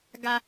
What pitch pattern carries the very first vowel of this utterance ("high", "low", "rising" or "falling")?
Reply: high